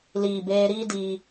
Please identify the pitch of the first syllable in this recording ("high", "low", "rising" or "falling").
low